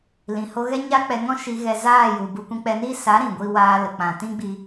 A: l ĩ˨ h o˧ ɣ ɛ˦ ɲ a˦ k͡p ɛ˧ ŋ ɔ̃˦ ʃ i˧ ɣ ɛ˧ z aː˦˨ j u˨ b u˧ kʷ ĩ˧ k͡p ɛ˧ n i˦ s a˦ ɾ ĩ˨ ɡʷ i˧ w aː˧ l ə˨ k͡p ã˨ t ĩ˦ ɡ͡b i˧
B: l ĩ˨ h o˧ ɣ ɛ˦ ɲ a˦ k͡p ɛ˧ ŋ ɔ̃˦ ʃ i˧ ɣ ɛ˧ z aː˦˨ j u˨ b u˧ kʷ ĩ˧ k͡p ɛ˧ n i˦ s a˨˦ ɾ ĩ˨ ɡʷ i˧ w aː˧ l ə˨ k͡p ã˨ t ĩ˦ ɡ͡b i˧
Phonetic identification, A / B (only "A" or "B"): B